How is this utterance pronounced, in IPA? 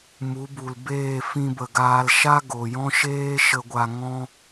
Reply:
mu˨˦bu˨lbeː˦˨ fĩ˧bə˨ɡaː˧lʃa˦ ɡo˨jɔ̃˦ʃeː˦ ʃə˧ɡʷa˧ ŋɔ̃˦

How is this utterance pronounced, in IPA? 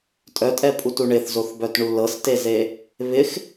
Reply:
tʼœtʼɛpʼutu ɳɪθzoθbœtɳu lɤsteze | βɪx

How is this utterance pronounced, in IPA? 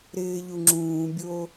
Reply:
ɾɪːʎuŋ͡ǁũːbʲo

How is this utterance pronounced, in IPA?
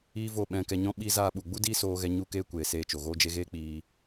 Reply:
iː˦vo˦˨ ɓɛ̃˧kɛ˧ɲɔ̃˦ ɓi˦ zaː˧ɓu˨ɡ͡bu˦ diː˦soː˧ɣɛ˧ ɲu˦keː˦kʷeː˨ seː˧t͡ʃo˨ɣoː˦d͡ʒe˦ ɣeː˦ k͡piː˧

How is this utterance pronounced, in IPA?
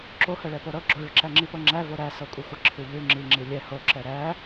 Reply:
ǁohəɭɛpo ɾɤ ɡ͡ǁoɭəǁæ ŋ͡ǁipɤŋ͡ǁævo ɾæ sɤkʷʼəxʷə ǁʰʉʎʉ ŋ͡ǁiŋ͡ǁi lʲɛ ho ǁɛɾæ

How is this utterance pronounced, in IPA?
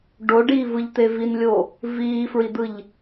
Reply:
ɖoɖiːvɯʎt̪e vinlʲo | viːfɹid̪ɯʎ

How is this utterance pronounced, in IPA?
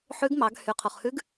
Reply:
ħʉ˧˥ɡ mɑ˩˧ɡ hy˩˧qʰo˩χhʉ˧˥ɡ

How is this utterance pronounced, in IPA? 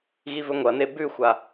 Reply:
ɣivɵŋʷɐne bʉxʷa

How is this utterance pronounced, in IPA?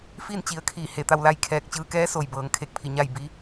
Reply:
fiː˥˨nt͡ɕi˩˧ə̯ kʰiː˧˩he˧˩ t̪a˥˨wla˥˨j kʰɛː˧˩k̚t͡ɕɯː˧kɛː˧˥ so˩jbɤː˩˧ŋ kʰe˧˩k̚pʰi˧˩ ɲa˥˨j bi˧˥

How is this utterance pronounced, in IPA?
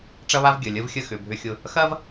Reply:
ʈ͡ʂɐ˧βa˧v ɡʲə˩˧˩ lʲə˧vxʲə˧ xʏ˩˧˩bʱʏ˧xʲʊ˧ | xɐ˥v

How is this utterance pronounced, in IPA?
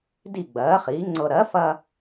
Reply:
di˥˩ ɡ͡bɜː˩˥χiː˩˥ŋ͡ǀɤ˧ ɾɜ˩˥fɐ˧

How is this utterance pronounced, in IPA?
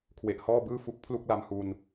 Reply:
kʰwe˨˩ʔhɔː˥˩bɯː˥˩ fu˦˥k̚pʰlu˥˩k̚la˧mhu˧n

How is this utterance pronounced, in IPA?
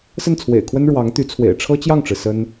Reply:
sə˥˩nt͡sʰwḛ˨˩ɪ̯kʰwə˥n ɻwɑ˧˥ŋt̪y˧˥t͡sʰwḛ˨˩ɪ̯ ʈ͡ʂʰɤ˥t͡ɕjɑ˥˩ŋʈ͡ʂɻ̩˩ sə˥n

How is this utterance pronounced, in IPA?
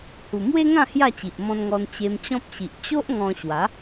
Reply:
hu˨˩mwe˦ŋã˥˧ hja˥˧t͡ɕi˨ʔmɔ̃˧nŋɔ˧n t͡ɕe˧mt͡ɕɔ̃˦p̚ɕi˨ʔ t͡ɕo˦ʔ ŋɔ̃˧ɕwa˨˦

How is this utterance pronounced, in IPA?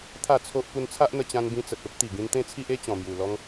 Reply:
t̪ʰa˥˧t͡sʰo˦ʔ pu˧nt͡sʰa˦ʔn̪ə˧ t͡ɕã˧nbĩ˧t͡sə˨t̚ o˦p̚t̪i˨˩ ɡĩ˧nt̪ẽ˦t͡sʰi˦ʔe˦ t͡ɕɔ̃˨˩mju˨˩lɔ˦ŋ

